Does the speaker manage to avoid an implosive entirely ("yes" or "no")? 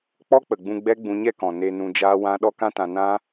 no